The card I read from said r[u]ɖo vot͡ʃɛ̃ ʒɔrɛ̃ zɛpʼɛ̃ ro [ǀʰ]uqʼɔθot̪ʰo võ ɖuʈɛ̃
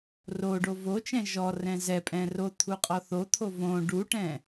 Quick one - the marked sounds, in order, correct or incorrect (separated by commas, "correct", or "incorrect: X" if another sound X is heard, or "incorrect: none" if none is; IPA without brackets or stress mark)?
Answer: incorrect: o, incorrect: t̪ʰ